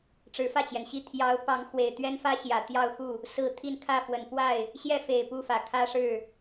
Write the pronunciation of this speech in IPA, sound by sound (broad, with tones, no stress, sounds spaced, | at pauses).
ʈ͡ʂ ɻ̩˧˥ f ä˥˩ t͡ɕ j ɛ˩ n ɕ i˥˩ t̪ʰ j ɑ˧˥ ʊ̯ p ɑ˧˥ ŋ x w e˨˩ ɪ̯ t̪ ɥ ɛ˥ n f ä˥ ɕ j ä˨˩ t̪ j ɑ˥˧ ʊ̯ x u˥˩ | s ɹ̩˥˧ t̪ʰ i˥˧ n kʰ ä˥˩ f w ə˨˩ n p w a˥˩ ɪ̯ | ɕ j ɛ˥˩ f e˨˩ ɪ̯ p u˥˩ f ä˨˩ kʰ ä˥ ʂ ɻ̩˥˩